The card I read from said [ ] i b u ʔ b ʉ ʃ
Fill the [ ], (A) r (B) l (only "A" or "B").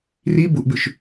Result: A